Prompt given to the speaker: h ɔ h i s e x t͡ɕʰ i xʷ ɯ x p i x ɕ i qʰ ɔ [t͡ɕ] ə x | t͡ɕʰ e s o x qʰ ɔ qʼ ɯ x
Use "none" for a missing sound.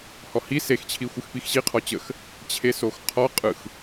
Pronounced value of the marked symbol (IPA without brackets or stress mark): t͡ɕ